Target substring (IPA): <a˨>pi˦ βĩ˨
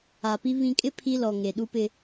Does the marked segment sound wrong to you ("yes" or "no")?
no